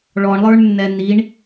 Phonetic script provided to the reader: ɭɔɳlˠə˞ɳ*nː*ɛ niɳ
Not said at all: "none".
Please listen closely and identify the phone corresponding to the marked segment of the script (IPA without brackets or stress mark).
nː